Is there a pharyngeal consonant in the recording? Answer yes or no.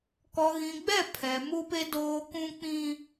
no